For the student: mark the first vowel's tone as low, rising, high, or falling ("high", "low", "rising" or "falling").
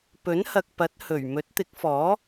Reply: rising